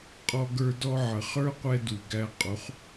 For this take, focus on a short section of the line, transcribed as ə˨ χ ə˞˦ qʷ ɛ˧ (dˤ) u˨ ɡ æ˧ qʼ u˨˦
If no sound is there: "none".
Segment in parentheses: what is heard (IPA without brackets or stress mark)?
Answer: d